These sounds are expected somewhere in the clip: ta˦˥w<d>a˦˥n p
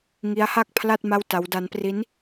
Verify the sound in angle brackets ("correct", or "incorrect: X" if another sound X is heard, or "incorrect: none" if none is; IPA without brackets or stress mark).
correct